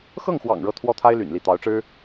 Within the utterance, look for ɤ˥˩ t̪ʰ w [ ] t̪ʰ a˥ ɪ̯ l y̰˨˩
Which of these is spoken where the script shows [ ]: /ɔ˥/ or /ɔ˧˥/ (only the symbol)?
ɔ˥